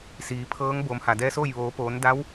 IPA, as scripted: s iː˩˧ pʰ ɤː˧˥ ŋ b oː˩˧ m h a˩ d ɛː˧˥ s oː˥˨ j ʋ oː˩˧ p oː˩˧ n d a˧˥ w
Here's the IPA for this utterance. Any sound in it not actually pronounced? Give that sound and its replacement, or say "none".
none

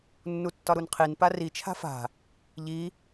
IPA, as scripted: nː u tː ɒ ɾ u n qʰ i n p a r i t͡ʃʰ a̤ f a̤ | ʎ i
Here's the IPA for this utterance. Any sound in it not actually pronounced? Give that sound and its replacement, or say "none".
none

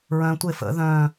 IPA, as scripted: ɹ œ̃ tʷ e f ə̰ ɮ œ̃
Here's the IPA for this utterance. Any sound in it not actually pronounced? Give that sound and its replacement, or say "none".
ɮ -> ð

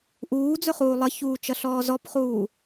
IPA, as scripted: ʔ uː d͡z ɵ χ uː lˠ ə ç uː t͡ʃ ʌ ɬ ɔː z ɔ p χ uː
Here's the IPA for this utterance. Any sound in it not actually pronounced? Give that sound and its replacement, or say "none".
none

